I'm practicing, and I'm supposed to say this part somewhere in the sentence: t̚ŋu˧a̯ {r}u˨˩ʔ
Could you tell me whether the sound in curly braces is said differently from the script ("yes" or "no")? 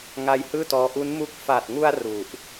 no